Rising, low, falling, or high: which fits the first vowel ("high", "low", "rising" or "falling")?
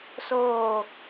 falling